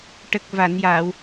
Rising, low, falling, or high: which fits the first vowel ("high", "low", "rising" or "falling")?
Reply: low